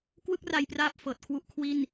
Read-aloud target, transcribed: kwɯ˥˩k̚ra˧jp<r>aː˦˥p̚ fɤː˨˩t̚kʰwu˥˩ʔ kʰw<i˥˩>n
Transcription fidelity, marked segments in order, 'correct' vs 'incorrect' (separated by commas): correct, correct